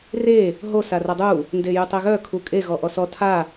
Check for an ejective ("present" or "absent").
present